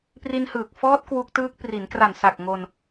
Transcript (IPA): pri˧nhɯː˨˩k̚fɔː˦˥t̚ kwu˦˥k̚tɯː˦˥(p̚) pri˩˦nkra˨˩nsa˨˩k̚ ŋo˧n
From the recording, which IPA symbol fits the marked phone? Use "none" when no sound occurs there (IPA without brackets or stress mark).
k̚